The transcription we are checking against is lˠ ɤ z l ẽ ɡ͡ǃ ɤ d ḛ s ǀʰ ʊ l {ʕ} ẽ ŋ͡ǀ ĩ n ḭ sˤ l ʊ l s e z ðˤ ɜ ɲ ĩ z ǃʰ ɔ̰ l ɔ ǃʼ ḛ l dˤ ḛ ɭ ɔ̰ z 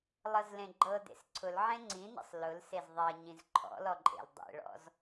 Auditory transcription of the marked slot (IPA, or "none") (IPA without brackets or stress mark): ʕ